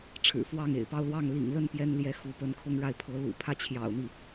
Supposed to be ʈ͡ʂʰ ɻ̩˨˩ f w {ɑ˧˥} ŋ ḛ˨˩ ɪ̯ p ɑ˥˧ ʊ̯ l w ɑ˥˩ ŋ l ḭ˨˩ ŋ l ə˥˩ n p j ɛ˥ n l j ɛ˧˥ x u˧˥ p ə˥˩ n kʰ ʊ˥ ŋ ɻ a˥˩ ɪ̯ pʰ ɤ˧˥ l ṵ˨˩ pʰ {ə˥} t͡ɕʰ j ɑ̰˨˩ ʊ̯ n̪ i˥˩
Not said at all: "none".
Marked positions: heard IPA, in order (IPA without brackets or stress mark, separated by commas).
ɑ˥˩, ä˥